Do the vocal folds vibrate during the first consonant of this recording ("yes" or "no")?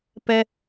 no